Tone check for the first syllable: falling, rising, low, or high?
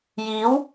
rising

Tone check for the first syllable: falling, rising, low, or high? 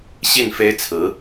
falling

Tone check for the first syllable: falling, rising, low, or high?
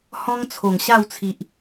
high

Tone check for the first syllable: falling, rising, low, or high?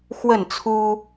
falling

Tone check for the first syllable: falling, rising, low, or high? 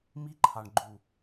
high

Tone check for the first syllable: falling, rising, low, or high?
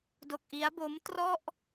low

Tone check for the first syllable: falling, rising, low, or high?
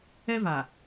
high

